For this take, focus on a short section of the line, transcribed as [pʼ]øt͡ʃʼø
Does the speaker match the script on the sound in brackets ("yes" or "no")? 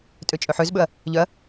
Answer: no